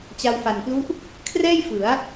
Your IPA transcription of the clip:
t͡ɕ a˧ w f a˨˩ n p l u˦˥ ʔ | kʰ r ɛː˥˩ j f ɯ˩˦ a̯

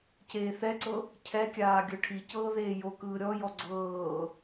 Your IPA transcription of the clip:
c eː θ ɛ ǀ ɤ | cʰ ɛ kʲ aː ɡʲ ɤ ʈʰ i c ɤː ð eː j o k ɯː ɾʲ ɔ j ɔ ɡ͡ǀ ɤː

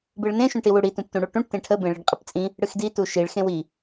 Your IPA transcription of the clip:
b ɨ ɭ n ẽ ʃ ũ ʈ i w u ɽ i t ũ p t ũ ɽ u ʈ ũ ʈ t ẽ ʈʰ ə b ẽ ɭ i ɖ qʼ ə p t͡sʼ ĩ | ɽ ɨ x d i t u ʃ i ɭ x ẽ w i

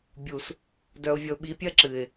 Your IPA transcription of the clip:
bʲ u˨ s | d œ˨ ʊ̯ vʲ ʌ˨ ʊ̯ ɓ i˨˦ pʲ ɜ˦ ǁ ɨ˨ ɪ̯

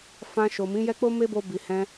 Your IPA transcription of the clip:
f ã˧ ʃ o˨ m ĩ˨˦ j ɛ˦ k͡p o˦ m e˦ b o˧ b i˨ h ɛ̃˧

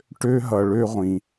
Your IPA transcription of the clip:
ʈ ø˦ ɦ ʌ˧ ɭ ø˦ ʁʷ ĩ˧

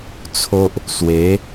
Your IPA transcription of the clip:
t͡sʰ o˦ ʔ | s w e˨˦

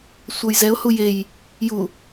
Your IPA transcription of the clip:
sʷ ʌ j z ɛ ʊ̯ h u j e j | j u

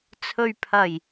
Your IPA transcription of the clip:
t͡sʰ ɵ˨ ɥ pʰ ɐ˨˩ j

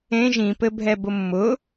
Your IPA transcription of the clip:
ẽ ʒ ĩ p ɘ bʱ ɛ b ʊ mː ʊ

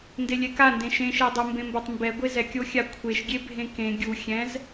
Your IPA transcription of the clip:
n d e lʲ ɛ k a n d ẽ ʃ ẽ ʃ e dˤ ɤ m b ẽ m b o tˤ m b ɛ ɡʷ e z ɛ kʲ o xʲ a kʷʰ e ʃ ɡʲ e bʱ ẽ k ẽ ɡʲ u xʲ ɛ̃ z

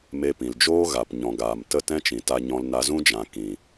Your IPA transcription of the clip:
m e˧ p ĩ˨ l d͡ʒ oː˦ ɣ a˨ p ɲ ɔ̃˨ ɡ aː˨ m t ə˦˨ t ɛ̃˦ t͡ʃ ĩ˨ t a˦ ɲ ɔ̃˦ l n a˧ z ũ˦ d͡ʒ ã˨ k ĩ˨

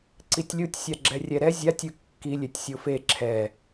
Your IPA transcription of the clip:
ǀ i tʲ lʲ u tʲ sʲ a ɡ͡ǁ ɛ rʲ ɛ ɾ ɛ zʲ a tʲ ɯ kː i lʲ e tʲ sʲ o f e ǁʰ ɛ

